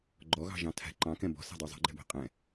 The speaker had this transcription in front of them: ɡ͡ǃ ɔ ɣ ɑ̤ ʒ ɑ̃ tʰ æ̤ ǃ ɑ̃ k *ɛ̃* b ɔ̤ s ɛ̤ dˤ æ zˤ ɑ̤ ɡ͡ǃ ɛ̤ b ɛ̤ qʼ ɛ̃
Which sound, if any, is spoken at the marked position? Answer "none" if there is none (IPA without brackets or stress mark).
ɛ̃